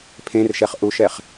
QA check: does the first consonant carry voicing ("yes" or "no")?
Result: no